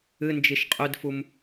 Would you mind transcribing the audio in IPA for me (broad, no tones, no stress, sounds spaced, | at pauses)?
ɨ n d͡ʒ i ʃ qʼ ʉ d f u m